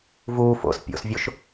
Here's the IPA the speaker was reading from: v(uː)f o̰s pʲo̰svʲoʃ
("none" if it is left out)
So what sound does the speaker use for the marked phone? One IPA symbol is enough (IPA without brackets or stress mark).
uː